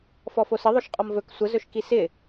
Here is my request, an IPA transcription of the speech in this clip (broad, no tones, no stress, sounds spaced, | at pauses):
f ɔ f o s ɪ ðˤ o ʃ qʼ ɔ m v ɵ k sʷ ə z ɵ ʃ k i s ɪ